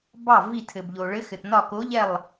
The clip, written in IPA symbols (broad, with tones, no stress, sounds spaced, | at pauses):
b ɑ˦˨ v i˦˨ tʰ ɘ˨ b ʎ o˨ ɭ ɘ˧˥ x ɘ˨ t n ɒ˦˨ k o˧˥ ʎ ɛ˦˨ lˠ